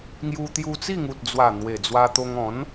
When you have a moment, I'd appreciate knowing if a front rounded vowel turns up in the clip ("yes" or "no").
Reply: no